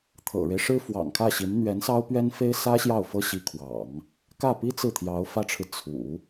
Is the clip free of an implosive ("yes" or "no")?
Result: yes